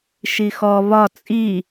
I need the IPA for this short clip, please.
ʃixɔ βɒ t͡sʼi

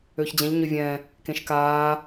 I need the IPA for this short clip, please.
øːçd͡ʑɛ̃ʎ ɲʏvʲɛ̃ | kẽʃkaː

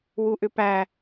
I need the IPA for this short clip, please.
wuʔʏpæ

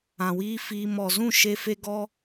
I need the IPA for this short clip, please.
ã˨wiː˦fiː˧ mɔ˨zũ˦˨ʃe˧fe˧ ɡɔ˧

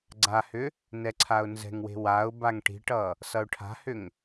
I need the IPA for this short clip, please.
ɡ͡ǀahʏ | nɛǀʰaʊ̯nzɛ̤ŋwe̤ waʊ̯ baŋʈi̤ʈʌ | sʌʊ̯ʈʰa̤hʏŋ

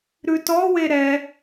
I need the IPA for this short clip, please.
ɾʉtɔwe ɾɛ

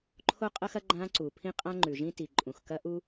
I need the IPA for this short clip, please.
ǃʰo˥qʼɐ˥xɐ˥ ɡ͡ǃã˥ǀu˩ pʰĩ˥qʼã˥ŋ͡ǃʉ˩ʒĩ˥ ti˩ǃʼũ˩x kɐ˥ʔu˥

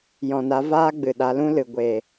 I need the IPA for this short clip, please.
jɔ̃˨ na˨˦ vaː˦ɡ͡bɨ˨ ɗa˨˦lũ˦lɨ˨ ɡʷe˨

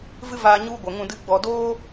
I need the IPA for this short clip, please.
vɨ˦vaː˧ ɲu˦ɡʷə˨ ŋũ˦˨dɨ˦ɡ͡bɔ˧ doː˦

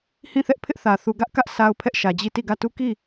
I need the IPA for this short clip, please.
hĩ˦˨θɛ˦ʔpʰɪ˦ʔ θä˨ θu˨ɡä˦ʔkä˦ʔ sʰa˦ʊ̯pʰɛ˦ʔʃä˨d͡ʑi˦˨ ti˦˨ɡä˦˨tu˦ki˦˨

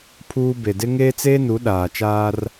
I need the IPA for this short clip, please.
pʰuː˦ be˨dɪ˦ ŋeː˦t͡seː˦nu˨˦ ɗaː˨t͡ʃaː˦r

